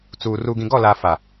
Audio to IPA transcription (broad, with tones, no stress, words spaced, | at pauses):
t͡suː˨ ruː˨ɡĩ˨ɡɔ˦˨laː˨ fa˨